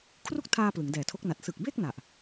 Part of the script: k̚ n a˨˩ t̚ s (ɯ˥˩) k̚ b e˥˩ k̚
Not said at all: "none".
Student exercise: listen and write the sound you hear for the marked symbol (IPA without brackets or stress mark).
ɯ˨˩